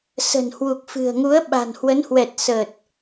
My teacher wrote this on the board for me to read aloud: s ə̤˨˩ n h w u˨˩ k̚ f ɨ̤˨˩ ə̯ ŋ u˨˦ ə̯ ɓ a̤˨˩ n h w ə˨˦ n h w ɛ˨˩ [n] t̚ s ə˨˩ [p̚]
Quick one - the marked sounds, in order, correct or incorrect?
incorrect: none, incorrect: t̚

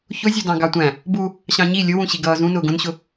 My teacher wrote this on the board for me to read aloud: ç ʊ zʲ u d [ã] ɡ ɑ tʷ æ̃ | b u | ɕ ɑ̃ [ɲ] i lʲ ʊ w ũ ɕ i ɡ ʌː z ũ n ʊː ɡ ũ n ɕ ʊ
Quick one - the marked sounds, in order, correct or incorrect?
incorrect: ɑ̃, correct

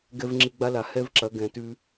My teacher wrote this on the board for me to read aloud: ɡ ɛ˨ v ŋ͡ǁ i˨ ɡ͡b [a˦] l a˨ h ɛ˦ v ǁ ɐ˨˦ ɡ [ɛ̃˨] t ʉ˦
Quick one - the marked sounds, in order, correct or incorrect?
correct, correct

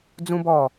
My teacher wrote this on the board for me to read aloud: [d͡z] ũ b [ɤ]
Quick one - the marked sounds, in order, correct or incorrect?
correct, incorrect: ɔ

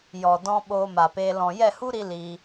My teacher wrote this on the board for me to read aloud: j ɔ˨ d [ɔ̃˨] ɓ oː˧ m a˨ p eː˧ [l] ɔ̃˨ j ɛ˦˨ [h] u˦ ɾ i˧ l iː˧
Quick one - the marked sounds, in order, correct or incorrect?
incorrect: ɔ̃˧, correct, correct

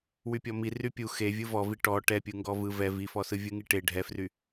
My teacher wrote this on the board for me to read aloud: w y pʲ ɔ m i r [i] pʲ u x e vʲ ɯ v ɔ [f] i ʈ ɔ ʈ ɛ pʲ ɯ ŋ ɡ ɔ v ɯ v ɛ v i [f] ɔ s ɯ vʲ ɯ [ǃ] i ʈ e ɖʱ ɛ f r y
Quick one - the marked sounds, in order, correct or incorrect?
incorrect: y, incorrect: v, correct, incorrect: ŋ

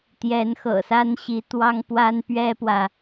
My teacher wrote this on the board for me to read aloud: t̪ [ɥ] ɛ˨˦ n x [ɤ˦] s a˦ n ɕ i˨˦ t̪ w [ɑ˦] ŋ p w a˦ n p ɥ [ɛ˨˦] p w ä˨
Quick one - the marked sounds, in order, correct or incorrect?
incorrect: j, incorrect: ɤ̰˨˩, correct, incorrect: ɛ˦

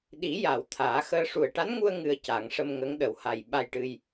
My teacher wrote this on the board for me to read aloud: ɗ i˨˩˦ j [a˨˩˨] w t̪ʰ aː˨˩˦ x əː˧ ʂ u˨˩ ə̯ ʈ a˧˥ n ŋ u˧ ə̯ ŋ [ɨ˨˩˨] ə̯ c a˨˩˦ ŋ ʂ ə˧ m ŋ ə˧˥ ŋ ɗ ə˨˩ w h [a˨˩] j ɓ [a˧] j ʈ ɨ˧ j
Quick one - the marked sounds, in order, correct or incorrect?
correct, incorrect: ɨ˧, correct, correct

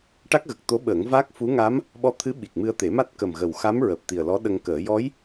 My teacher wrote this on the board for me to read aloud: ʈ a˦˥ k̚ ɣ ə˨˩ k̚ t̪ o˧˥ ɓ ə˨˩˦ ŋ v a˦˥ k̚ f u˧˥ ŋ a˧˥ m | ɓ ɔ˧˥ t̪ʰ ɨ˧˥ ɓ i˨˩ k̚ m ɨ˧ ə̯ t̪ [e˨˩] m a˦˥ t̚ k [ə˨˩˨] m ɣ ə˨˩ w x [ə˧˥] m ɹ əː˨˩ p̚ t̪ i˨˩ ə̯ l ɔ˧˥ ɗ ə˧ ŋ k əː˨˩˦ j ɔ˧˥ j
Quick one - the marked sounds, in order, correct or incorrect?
incorrect: e˨˩˦, incorrect: ə˨˩, incorrect: a˧˥

